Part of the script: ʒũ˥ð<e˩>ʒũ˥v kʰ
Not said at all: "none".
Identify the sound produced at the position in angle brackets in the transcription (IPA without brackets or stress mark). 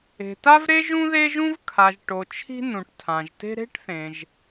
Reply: e˥